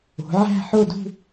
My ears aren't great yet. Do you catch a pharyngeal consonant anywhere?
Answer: yes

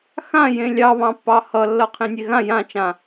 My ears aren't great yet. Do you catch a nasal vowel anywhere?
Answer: yes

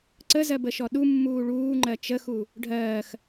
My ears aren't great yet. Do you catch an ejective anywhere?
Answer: no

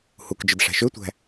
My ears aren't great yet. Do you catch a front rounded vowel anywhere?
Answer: yes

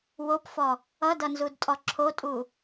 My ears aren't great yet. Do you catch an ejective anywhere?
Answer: yes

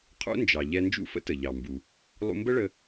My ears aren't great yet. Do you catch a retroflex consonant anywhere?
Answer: yes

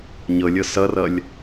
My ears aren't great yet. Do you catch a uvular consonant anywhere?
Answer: no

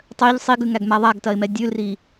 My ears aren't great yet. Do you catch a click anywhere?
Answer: no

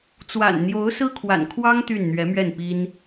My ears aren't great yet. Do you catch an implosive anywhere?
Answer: no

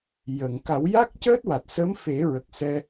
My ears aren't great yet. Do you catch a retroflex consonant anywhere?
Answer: no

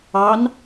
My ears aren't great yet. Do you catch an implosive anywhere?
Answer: no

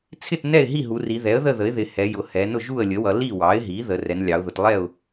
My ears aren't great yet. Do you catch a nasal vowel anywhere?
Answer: no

